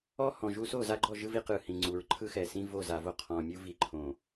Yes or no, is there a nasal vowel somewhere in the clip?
yes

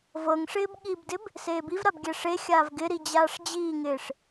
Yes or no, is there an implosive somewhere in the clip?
yes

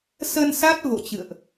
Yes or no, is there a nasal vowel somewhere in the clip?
no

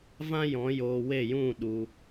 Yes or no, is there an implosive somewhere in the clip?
yes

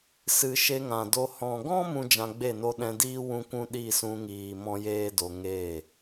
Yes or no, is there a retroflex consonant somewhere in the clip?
no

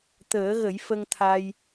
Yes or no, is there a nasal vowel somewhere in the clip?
no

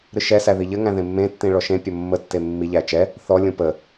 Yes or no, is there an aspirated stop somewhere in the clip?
no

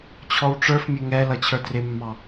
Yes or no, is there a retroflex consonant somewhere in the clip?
yes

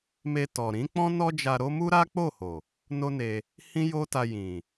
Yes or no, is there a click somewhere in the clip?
no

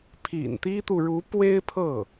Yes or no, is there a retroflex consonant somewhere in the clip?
yes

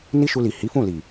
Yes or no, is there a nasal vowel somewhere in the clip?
yes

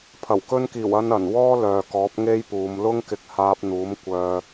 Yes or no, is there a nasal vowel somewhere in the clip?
no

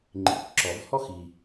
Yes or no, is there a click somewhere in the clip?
yes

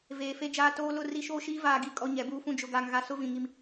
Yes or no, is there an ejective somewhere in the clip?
yes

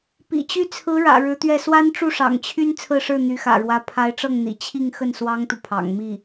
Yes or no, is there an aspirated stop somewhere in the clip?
yes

